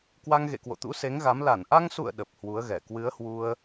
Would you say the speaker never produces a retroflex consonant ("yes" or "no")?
yes